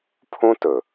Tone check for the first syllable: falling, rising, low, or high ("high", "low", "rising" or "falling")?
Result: high